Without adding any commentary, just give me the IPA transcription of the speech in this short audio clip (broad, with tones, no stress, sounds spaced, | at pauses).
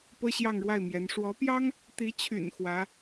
p ɤ˥ ɕ j ɑ˥˧ ŋ ɻ w a˥˩ ɪ̯ m j ɛ˧˥ n ʂ w ɔ˧˥ p j ɑ˥ ŋ | t̪ i˧˥ t͡ɕʰ y̰˨˩ n x w ä˧˥